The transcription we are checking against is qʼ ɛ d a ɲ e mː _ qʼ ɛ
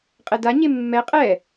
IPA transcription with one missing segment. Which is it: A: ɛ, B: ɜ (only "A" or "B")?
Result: A